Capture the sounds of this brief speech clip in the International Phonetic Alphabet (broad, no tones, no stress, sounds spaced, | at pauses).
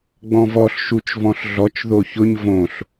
ɡ͡b ɔ̃ v ɔ ɬ ʃ u t͡ʃ v ɔ̃ ɬ ɮ ɔ t͡ʃ ð o ç ʊ ɲ v õ ɬ